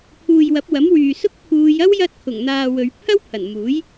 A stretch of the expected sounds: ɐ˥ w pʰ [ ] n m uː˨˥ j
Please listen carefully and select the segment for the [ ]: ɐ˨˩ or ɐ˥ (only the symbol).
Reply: ɐ˨˩